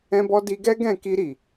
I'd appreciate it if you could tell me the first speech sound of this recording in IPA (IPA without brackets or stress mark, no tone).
ɛ̃